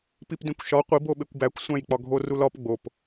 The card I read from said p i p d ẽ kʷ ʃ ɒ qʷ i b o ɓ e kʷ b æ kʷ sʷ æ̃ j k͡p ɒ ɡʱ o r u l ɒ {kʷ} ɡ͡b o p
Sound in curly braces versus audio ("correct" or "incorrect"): incorrect